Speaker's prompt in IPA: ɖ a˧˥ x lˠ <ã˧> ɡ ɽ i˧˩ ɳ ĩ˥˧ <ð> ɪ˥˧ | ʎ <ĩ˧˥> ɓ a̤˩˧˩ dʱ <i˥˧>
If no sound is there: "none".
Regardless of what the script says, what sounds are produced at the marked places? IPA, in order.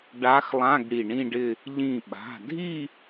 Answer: ã˧˥˧, ɖ, ĩ˧˩, i˥˧

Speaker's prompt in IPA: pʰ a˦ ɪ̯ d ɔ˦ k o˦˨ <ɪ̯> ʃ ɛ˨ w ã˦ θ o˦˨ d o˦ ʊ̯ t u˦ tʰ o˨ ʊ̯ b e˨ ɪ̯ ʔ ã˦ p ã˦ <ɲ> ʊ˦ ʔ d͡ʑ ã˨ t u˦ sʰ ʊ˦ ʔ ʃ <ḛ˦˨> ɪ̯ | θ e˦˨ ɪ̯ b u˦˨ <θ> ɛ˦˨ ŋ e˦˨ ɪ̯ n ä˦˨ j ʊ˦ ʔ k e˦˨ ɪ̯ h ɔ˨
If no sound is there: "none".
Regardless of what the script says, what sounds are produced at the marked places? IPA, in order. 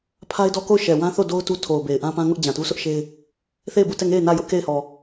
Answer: ʊ̯, ŋ, e˦, t

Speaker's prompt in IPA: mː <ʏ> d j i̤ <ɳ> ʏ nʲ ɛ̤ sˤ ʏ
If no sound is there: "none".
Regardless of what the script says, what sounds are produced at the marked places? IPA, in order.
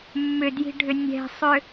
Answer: ʏ, ɖʱ

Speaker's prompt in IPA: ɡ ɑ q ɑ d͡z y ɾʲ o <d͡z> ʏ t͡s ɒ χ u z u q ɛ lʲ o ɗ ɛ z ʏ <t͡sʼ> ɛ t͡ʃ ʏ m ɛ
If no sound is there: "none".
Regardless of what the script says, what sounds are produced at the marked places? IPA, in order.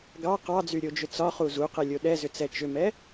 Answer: d͡ʒ, t͡s

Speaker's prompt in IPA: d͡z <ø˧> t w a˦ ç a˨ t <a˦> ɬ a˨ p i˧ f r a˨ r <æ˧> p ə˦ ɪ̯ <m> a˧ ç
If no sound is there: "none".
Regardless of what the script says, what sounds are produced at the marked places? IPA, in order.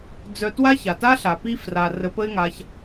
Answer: œ˧, a˦, ə˧, ŋ

